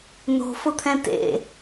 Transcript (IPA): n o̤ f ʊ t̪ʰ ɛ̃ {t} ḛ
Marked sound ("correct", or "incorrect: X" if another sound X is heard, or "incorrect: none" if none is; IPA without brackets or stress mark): correct